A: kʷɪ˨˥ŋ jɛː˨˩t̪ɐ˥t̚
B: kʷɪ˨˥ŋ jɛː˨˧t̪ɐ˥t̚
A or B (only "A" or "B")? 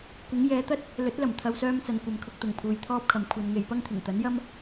B